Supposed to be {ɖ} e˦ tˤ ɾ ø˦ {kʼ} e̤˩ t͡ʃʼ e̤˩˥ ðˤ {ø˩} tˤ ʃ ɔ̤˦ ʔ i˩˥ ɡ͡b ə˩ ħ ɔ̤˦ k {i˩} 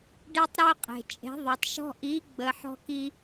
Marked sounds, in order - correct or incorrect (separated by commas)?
correct, incorrect, correct, incorrect